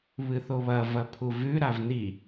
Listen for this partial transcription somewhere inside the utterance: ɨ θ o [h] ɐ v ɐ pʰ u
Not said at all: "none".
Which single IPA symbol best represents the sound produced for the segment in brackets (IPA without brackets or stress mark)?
β